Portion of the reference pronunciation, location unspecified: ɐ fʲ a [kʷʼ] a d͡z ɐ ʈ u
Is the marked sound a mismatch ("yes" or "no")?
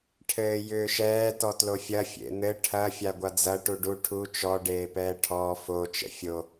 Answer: yes